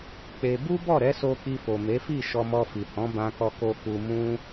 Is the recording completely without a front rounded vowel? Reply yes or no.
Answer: yes